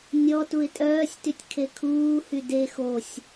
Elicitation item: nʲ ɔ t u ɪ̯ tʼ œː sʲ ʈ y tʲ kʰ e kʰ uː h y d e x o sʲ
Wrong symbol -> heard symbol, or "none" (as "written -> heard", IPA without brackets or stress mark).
ʈ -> t